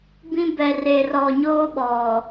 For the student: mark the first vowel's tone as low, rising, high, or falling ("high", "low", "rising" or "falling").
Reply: high